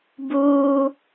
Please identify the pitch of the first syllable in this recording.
high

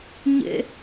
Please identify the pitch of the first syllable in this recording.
high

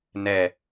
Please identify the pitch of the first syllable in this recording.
low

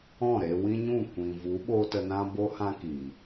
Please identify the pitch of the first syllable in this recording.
falling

